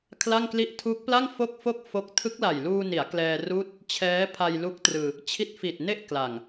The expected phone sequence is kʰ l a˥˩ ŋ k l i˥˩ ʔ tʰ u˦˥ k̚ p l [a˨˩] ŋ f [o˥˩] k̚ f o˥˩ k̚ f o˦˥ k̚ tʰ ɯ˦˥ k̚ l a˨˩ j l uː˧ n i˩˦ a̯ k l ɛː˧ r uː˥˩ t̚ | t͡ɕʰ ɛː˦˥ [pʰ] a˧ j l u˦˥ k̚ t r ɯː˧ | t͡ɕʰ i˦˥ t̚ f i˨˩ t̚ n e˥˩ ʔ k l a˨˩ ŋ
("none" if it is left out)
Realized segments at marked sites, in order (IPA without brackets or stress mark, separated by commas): a˥˩, o˥˩, pʰ